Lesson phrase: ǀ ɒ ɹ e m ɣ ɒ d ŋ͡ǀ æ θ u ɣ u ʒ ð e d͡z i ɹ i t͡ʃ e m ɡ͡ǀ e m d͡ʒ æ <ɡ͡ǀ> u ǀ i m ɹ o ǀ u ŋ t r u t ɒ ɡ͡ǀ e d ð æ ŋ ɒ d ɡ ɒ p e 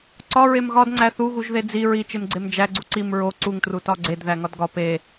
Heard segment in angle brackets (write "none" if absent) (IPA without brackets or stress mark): ɡ͡ǀ